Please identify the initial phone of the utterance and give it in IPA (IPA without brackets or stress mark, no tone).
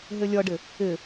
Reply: ɦ